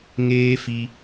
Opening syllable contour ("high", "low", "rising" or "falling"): high